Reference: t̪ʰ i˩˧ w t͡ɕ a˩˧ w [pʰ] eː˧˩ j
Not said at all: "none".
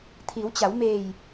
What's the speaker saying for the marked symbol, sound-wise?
m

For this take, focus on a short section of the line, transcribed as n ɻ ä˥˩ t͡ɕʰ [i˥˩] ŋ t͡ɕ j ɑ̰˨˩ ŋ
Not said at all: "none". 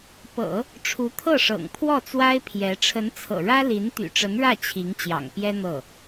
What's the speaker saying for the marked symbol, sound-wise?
i˧˥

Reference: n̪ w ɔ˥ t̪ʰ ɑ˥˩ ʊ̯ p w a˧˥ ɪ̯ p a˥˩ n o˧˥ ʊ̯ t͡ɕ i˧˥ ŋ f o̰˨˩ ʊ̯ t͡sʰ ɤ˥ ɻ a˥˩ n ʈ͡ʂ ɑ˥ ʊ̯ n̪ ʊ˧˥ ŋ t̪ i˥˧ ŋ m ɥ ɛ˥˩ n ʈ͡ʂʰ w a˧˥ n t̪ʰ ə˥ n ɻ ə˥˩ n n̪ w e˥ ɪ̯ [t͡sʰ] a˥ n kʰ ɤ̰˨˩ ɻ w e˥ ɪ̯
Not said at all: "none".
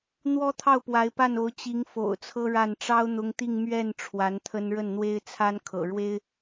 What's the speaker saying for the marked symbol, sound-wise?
t͡sʰ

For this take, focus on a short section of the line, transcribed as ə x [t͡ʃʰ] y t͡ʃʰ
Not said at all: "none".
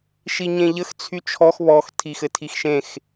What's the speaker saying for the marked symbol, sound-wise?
t͡sʰ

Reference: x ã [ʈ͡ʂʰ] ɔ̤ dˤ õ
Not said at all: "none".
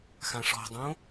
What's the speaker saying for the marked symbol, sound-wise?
ʂ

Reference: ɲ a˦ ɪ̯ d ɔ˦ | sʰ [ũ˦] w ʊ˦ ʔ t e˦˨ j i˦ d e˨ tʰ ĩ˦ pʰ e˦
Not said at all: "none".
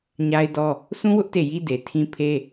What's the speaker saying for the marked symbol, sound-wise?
ũ˦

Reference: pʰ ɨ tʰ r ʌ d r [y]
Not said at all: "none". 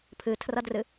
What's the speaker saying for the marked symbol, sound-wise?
ɨ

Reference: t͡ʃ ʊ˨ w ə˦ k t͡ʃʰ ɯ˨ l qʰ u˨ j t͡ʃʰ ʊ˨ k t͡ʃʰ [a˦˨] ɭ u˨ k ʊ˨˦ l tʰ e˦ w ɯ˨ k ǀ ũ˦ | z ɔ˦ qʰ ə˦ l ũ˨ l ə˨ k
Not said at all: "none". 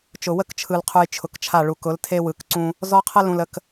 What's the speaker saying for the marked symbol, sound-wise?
a˦˨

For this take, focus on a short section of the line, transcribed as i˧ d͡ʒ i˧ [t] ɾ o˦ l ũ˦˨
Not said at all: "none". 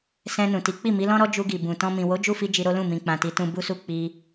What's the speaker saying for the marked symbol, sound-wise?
none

